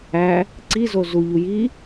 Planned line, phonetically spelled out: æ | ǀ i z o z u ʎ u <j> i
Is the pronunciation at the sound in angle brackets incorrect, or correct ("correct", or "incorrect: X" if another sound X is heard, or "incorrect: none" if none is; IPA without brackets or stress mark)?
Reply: correct